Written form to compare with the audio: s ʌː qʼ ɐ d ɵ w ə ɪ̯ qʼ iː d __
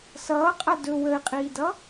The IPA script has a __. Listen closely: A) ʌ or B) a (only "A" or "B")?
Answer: A